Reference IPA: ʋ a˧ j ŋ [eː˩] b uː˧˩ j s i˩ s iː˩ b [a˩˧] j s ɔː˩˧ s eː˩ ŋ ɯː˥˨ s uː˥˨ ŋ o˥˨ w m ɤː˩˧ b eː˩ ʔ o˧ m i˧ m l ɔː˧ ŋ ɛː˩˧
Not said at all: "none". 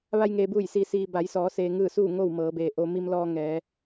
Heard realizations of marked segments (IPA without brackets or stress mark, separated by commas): eː˩, a˩˧